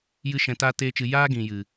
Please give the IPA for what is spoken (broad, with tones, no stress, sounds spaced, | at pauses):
j ɨ˦ ʃ ɛ̃˧ t aː˦ t eː˦ t͡ʃ ɨ˧ j aː˦ ɡ ĩ˨ j ɨ˨